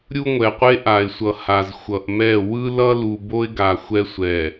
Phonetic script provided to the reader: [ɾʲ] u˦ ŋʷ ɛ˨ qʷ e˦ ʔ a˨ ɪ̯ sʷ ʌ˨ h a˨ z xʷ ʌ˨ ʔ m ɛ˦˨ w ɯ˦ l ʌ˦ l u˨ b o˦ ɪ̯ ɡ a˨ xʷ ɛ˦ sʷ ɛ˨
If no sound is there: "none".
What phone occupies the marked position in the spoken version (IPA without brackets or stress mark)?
ɾʲ